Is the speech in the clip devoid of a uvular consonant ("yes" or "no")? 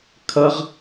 no